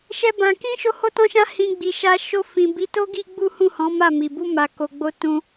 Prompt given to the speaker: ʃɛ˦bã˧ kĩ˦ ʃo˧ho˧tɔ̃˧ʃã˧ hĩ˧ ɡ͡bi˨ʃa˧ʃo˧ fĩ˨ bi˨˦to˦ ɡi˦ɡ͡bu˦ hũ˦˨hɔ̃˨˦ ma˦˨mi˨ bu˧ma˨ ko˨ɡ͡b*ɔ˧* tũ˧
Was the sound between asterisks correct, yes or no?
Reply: no